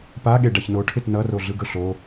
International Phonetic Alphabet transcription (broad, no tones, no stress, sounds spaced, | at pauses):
p a ɠ e ɖ a ç n o ʈʰ ɪ t n ʌ r o ɮ ɯ ɡ ɵ ɬ o